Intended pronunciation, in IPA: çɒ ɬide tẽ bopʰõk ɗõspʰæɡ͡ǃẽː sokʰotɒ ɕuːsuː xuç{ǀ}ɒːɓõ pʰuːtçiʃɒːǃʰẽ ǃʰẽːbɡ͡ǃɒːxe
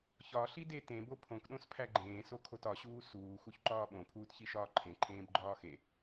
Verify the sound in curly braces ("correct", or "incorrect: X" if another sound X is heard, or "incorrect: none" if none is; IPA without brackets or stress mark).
incorrect: ǃ